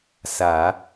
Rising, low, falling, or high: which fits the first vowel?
low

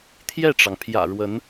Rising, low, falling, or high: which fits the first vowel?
falling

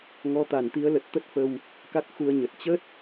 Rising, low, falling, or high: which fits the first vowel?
rising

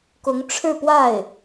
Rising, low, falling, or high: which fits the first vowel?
rising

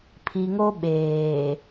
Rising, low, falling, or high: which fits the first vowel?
low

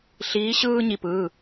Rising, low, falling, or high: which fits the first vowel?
rising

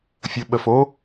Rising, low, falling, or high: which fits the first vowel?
low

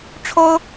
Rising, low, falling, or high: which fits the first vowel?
high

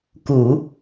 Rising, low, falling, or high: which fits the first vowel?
low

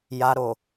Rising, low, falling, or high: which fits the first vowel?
low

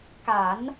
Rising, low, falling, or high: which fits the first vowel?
low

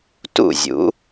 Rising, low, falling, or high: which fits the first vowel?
falling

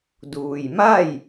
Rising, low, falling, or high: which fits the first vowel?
low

